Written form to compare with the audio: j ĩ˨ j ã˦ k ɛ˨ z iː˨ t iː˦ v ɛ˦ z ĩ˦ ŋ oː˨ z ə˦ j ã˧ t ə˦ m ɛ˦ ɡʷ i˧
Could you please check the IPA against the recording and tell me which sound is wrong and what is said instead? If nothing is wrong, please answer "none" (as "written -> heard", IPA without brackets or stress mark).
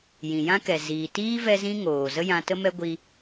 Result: none